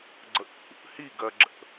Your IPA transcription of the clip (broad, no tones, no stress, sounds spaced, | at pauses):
ɡ͡ǀ ə ʔ ṵ | h i ɡ ɜ ɡ͡ǁ ə̰